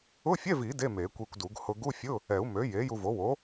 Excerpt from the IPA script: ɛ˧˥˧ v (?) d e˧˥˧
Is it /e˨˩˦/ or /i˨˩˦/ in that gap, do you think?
i˨˩˦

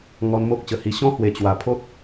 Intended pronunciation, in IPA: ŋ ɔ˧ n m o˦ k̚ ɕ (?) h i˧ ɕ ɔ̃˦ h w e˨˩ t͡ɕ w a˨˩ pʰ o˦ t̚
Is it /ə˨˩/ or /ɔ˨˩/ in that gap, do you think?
ə˨˩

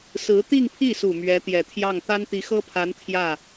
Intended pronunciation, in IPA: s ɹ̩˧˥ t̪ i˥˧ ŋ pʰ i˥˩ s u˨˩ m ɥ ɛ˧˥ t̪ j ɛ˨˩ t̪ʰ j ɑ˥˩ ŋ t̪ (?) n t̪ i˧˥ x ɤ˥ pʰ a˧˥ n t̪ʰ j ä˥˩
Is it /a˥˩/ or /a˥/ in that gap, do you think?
a˥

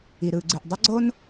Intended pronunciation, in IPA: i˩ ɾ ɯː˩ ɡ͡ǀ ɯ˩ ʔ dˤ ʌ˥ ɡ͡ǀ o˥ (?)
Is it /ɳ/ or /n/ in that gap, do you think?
n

